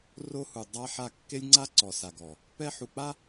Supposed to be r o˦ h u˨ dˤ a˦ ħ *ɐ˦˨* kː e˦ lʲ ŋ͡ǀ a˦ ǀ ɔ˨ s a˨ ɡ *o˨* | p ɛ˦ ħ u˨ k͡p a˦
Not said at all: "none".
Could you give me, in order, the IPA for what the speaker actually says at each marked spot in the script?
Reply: a˦˨, ɔ˨

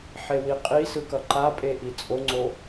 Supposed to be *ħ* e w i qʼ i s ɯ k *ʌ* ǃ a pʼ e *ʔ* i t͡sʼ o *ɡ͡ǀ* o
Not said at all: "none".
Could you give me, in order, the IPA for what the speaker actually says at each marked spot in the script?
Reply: ħ, ʌ, ʔ, ŋ͡ǀ

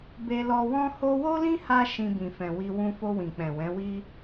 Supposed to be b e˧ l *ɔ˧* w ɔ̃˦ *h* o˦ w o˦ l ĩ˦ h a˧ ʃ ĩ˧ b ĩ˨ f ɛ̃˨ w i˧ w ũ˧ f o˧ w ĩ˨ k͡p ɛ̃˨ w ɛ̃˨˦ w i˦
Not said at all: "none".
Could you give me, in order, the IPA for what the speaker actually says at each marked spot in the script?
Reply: ɔ˧, h

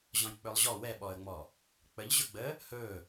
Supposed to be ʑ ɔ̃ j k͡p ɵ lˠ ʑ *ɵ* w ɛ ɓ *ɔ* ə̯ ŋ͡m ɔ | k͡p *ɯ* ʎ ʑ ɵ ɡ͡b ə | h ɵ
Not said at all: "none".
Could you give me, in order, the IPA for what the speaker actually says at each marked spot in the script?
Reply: ɔ, ɔ, ə

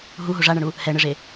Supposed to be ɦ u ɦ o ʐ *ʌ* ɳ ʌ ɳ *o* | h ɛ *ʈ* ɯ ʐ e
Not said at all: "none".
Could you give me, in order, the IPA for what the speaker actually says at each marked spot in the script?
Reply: a, u, ɳ

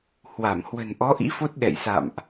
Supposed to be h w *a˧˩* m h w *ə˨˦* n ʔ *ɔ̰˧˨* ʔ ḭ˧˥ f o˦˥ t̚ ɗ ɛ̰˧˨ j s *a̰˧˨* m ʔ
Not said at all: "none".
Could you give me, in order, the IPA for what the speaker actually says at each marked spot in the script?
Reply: a˧˩, ə̤˨˩, ɔ˨˦, a̰˧˨

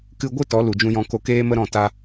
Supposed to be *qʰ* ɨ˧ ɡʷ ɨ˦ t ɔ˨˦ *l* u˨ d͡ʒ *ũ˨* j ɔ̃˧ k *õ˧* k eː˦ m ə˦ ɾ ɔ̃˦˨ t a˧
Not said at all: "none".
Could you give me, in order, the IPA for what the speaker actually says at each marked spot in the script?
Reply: k, l, ũ˧, o˧

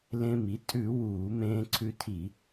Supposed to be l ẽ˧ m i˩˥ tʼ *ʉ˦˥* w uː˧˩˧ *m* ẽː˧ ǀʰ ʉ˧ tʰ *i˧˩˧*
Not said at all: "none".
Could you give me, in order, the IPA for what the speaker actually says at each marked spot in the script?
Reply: ʉ˧˩˧, m, i˧˩˧

